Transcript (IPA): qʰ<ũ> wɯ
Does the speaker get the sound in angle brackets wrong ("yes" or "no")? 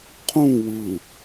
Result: no